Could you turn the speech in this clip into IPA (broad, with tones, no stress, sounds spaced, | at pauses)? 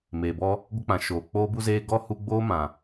m eː˨ b ɔ˦ | ɡʷ ə˧ k͡p ã˨ ʃ oː˨ k͡p oː˧ b u˧ z eː˧ ɡ ɔ˦ h u˧ ɡ͡b oː˦ m ã˨